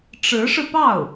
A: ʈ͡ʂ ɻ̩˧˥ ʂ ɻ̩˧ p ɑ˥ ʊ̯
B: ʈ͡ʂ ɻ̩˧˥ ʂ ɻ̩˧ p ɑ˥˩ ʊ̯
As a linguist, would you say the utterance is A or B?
B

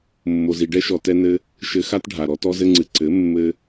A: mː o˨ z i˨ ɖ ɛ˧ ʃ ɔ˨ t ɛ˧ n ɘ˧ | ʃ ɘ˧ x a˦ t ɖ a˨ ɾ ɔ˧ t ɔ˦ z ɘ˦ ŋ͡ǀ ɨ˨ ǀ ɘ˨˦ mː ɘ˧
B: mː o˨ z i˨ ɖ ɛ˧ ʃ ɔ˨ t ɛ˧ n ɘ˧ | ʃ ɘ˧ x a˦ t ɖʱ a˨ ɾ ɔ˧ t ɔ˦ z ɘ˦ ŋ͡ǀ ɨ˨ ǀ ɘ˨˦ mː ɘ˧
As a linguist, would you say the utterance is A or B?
B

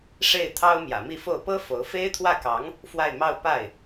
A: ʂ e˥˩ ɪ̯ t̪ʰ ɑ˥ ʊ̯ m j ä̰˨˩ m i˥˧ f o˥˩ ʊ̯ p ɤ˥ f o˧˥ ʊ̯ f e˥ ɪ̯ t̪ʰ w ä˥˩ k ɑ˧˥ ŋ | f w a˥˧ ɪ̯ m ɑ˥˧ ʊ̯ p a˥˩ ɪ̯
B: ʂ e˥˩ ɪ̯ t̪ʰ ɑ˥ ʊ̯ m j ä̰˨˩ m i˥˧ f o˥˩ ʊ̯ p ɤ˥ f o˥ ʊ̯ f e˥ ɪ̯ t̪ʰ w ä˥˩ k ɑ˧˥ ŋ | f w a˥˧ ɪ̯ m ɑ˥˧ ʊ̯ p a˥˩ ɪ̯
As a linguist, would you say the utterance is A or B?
A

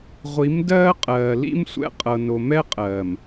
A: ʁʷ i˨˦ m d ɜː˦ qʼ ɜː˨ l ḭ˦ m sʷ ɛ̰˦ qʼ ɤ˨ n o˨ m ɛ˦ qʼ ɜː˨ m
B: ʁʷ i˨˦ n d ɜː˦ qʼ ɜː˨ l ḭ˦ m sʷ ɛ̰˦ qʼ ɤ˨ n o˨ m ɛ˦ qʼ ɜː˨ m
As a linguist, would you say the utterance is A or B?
A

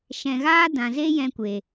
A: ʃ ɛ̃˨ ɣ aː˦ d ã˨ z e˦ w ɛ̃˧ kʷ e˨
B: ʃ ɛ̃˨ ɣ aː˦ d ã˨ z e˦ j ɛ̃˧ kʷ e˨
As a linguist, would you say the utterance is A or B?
B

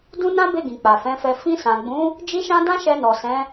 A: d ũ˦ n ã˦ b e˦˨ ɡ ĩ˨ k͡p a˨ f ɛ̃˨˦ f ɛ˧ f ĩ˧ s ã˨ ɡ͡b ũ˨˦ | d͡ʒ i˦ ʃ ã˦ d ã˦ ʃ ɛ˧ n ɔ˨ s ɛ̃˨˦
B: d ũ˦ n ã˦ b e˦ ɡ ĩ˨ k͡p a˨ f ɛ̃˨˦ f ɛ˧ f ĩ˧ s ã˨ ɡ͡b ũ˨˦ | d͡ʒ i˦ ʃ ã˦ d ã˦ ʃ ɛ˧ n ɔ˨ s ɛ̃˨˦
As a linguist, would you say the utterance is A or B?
A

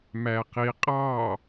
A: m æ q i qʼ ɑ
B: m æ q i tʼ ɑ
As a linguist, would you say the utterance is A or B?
A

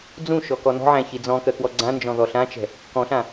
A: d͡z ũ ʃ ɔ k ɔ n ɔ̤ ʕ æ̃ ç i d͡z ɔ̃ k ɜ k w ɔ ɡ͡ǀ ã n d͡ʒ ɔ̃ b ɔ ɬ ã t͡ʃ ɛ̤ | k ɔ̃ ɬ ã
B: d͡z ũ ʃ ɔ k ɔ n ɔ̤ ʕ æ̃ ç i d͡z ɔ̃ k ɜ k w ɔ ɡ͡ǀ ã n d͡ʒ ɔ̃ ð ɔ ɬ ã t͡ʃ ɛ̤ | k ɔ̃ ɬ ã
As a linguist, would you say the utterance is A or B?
B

